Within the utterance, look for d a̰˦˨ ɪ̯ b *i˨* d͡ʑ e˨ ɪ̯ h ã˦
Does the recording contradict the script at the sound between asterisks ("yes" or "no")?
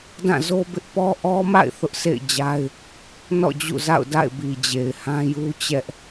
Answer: no